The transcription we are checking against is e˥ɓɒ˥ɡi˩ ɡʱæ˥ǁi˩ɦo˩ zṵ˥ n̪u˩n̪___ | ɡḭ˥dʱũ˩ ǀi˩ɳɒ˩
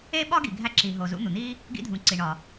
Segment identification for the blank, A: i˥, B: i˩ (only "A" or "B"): A